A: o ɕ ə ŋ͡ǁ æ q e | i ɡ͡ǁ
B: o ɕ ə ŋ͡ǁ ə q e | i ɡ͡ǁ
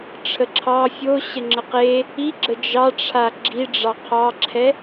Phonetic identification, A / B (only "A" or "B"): B